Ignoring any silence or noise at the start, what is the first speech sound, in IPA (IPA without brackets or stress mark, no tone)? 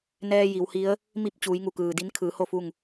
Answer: n